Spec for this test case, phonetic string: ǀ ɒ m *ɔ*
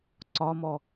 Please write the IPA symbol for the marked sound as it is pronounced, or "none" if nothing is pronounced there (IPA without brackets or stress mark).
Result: ɔ